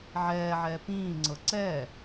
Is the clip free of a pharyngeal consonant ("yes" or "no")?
no